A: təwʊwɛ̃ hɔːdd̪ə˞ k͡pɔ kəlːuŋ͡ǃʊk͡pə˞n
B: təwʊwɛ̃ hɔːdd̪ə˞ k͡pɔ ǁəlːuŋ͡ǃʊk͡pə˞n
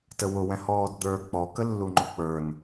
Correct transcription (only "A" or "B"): A